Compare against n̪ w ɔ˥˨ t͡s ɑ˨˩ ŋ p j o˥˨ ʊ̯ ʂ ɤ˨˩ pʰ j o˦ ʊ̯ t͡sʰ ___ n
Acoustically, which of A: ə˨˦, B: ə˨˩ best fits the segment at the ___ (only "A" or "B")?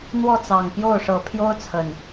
B